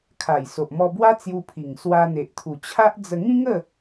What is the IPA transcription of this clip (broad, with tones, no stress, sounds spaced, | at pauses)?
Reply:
kʰ a˨˩ j s o˨ ʔ m ɔ˧ b w a˦ t͡s j u˧ pʰ i˨˩ ŋ s w a˧ n̪ e˨ ʔ t̪ʰ u˨˩ t͡ɕʰ a˦ ʔ d͡z ə˧ ŋ ĩ˦ ŋ ə˥˧